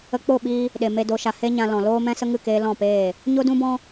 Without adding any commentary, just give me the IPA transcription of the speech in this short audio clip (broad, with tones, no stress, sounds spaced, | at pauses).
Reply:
ə˧ k͡p o˦˨ ɓ iː˧ | ɗ e˨ m e˧ d o˨˦ ʃ a˨ h e˦ ɲ ã˧ l ɔ̃˨ l oː˦ m ɛ̃˦ s ə˦ ŋ ɨ˦˨ k eː˧ l ɔ̃˦˨ p eː˦˨ | ɲ o˦ d ũ˦ b ɔ̃˦